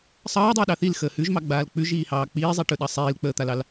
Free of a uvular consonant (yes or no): yes